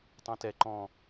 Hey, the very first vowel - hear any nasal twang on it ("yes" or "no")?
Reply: yes